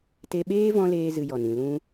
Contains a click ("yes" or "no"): no